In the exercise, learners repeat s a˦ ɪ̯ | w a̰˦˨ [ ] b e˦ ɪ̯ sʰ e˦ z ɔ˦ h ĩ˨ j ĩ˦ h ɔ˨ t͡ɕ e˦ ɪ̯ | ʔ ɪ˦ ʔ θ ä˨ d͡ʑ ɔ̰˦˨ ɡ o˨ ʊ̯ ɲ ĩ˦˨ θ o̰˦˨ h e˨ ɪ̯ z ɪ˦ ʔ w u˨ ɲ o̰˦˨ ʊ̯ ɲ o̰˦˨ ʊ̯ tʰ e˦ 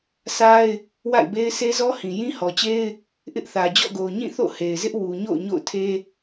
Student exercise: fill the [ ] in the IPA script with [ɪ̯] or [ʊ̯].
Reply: ɪ̯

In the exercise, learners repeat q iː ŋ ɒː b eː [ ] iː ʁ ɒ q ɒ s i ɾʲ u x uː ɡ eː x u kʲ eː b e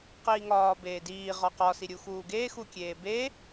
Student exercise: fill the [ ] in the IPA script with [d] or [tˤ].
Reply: d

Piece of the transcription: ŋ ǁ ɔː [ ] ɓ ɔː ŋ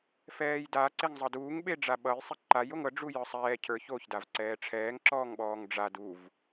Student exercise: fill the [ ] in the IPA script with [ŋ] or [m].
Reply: ŋ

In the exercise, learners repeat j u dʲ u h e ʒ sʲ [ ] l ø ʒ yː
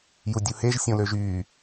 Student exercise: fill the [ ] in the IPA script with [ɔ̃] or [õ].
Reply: õ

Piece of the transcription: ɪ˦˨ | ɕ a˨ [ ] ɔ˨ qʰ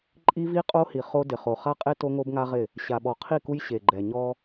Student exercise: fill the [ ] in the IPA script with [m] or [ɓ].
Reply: ɓ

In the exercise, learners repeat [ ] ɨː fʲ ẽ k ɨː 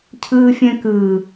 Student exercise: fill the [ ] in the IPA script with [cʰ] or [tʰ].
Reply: cʰ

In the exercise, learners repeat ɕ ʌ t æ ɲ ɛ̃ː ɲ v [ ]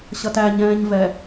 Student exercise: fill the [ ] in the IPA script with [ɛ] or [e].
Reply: ɛ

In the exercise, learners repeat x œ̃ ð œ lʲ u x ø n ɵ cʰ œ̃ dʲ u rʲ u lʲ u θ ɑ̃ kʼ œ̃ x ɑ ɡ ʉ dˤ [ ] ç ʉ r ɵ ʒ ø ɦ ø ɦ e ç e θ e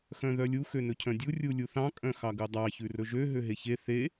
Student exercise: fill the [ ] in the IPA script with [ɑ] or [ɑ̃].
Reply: ɑ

